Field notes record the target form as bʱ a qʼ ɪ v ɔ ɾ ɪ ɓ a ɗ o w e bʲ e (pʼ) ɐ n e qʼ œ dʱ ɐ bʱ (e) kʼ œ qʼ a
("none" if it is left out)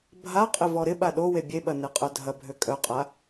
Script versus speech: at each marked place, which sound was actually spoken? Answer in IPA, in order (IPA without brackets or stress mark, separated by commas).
ɓ, ø